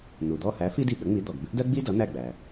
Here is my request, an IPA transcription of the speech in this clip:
n̪ u˩ d̪ ɔ˦˨ h æ˨˥ f i˥ d i˦˨ ɠ ə˨˥ ŋ͡m i˨˥ d̪ ɔ˩ ɡ b ɪ˥ ʔ d ɜ˥ ɡ͡b i˥ d ʌ˨˥ n̪ æ˦˨ ɡ͡b æ˩

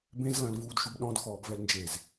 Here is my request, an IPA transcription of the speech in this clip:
b ẽ z l ɐ̃ l v uː d ʃ u b ɗ ɔ̃ d x ɔː b v ɛ l n d͡ʒ e z

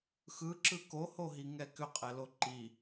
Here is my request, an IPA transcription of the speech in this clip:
x ɯ ǁ ɯ k o h o ɦ i ŋ ɛ k ʏ qʼ ɛ l o ǃ i

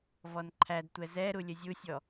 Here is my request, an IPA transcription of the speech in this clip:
v ɔ n ǃʰ æ d tʷ ɛ z ɛ ɾ u lʲ ə zʲ u sʲ ɔ

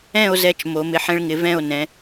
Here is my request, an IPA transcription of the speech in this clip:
ɛ̃˥˧ o̯ z ɛ˧ t͡ʃ m o˩˧ m ɪ˧ ħ ɛ̃˥ ɭ ŋ ɪ˧ v ɛ̃˥˧ o̯ n ɛ̃˩˧

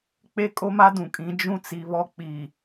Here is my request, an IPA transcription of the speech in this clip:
k͡p e˦ kʼ o˦ m a˦ d ũ˨ kʼ ĩ˨˦ d͡ʒ ũ˦ t͡s i˨ β ɔ˦ k͡p i˨

